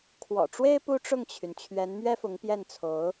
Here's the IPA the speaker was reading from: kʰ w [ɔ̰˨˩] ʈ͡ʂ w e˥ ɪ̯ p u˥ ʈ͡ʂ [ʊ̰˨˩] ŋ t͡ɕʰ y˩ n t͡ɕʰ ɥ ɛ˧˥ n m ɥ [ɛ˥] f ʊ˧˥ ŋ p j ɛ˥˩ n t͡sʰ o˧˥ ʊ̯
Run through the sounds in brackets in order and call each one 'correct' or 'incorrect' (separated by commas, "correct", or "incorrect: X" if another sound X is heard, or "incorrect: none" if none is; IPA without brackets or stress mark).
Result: correct, incorrect: ʊ˥˩, correct